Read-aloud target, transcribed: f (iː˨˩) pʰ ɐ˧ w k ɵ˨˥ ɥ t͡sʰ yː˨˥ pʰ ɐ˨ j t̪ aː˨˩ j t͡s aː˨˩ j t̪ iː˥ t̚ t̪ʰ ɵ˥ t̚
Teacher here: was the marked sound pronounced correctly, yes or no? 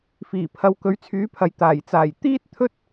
yes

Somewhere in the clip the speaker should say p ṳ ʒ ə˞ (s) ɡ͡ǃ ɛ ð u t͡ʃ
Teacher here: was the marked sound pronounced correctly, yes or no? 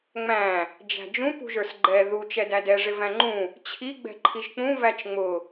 yes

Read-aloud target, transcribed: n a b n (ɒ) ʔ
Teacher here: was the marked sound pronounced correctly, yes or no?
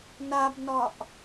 yes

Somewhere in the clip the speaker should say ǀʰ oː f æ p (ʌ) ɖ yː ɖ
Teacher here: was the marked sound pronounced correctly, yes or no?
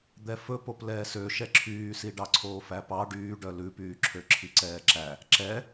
no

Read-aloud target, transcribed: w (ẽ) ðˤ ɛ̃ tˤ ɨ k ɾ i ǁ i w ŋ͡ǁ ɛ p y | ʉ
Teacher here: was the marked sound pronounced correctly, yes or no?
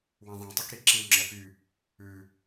no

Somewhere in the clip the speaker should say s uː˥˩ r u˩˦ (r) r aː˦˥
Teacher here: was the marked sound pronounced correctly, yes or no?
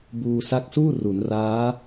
no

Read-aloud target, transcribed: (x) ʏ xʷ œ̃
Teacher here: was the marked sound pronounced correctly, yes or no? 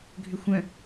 no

